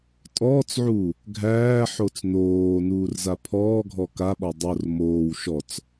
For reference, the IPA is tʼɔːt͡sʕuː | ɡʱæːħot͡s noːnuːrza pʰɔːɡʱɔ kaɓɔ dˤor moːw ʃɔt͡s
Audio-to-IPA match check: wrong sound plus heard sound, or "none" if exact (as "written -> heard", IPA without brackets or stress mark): none